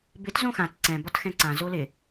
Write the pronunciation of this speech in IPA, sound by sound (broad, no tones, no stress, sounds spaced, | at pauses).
b ɪ t z õ x ã t ǀ ɛ̃ b ɒ t x ɛ̃ ǀ ã z o l ɪ